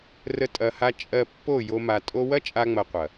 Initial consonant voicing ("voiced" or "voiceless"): voiced